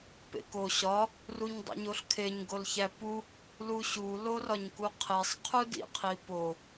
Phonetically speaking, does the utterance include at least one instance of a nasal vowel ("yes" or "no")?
no